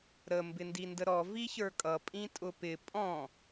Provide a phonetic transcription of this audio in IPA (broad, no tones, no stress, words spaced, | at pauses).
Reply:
ɾə mbɪndindəɾɔ viçə˞kʼʌ pʼĩtʼʊpɪ pʼɔ̃